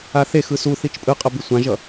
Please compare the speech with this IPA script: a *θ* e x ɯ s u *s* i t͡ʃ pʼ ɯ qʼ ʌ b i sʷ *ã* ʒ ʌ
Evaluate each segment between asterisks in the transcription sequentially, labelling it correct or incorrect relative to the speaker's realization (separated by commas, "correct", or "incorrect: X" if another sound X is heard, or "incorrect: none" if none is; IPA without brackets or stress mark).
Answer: correct, incorrect: θ, correct